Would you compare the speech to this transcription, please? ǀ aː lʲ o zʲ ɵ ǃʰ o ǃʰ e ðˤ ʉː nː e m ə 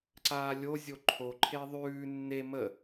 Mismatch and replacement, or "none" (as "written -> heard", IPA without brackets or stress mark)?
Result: ɵ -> o